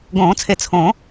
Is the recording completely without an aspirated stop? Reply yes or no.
no